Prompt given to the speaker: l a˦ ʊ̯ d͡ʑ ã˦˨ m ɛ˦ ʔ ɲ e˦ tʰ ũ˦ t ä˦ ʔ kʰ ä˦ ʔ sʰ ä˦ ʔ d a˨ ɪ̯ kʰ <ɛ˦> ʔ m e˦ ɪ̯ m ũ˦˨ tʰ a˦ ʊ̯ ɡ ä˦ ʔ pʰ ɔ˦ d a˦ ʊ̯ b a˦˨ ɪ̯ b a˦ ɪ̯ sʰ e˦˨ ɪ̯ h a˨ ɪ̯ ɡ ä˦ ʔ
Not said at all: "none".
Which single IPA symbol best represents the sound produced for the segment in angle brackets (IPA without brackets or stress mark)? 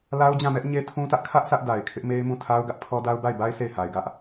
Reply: ɪ˦